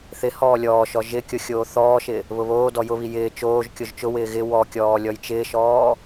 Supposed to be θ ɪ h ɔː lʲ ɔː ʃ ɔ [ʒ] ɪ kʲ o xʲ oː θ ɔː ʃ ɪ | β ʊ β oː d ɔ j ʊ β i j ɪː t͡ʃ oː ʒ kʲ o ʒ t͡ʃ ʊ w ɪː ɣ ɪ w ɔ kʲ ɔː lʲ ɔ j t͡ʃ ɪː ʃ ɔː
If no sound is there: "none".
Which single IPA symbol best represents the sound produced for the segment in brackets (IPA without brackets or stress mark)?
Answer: ʒ